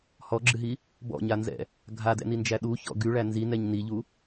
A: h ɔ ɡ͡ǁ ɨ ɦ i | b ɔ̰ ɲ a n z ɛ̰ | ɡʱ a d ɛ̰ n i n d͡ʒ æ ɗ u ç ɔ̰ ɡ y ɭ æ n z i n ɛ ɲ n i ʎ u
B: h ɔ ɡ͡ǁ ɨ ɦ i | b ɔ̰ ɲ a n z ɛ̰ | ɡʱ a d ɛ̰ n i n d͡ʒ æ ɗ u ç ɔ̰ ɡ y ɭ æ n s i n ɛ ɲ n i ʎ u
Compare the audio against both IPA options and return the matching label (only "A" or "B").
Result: A